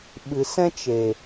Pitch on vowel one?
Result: low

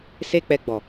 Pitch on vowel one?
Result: high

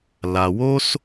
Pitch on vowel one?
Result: low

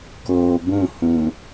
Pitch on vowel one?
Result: low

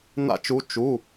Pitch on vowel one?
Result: falling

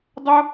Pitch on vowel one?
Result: high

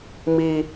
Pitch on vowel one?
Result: high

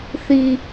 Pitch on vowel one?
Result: high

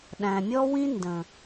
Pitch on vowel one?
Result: low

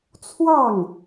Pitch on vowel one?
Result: falling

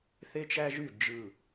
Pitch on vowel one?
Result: high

